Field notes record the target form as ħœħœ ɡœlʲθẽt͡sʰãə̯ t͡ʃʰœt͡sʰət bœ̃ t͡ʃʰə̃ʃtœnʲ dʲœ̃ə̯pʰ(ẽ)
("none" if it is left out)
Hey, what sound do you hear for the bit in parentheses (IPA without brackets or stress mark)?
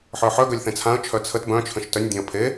e